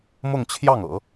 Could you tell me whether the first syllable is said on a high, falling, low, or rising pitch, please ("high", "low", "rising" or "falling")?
falling